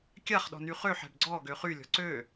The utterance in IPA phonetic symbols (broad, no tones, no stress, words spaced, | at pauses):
kʲaχɗɔ̤ny χøħɛ̤b ɡ͡ǀɔɡø χylʲɔ̤ ǀø